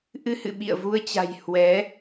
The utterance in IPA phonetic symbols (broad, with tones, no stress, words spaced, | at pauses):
ʔɨ˧hɨ̰˧˨ ɓḭ˧˨ə̯vu˧ə̯t͡ɕa̤˨˩j hwɛ˨˦